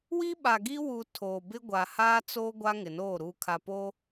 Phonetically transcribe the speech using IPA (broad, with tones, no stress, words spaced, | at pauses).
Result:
wi˦ɓa˨ɡi˦wu˨ tʰoː˨bɪ˦ ɡʷa˨haː˦t͡soː˦ ɡʷa˦ŋɪ˨noː˦˨ ɾuː˨kʰa˨po˦